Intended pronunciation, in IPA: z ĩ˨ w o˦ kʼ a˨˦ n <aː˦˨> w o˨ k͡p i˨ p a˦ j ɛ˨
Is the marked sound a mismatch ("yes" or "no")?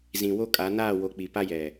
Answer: no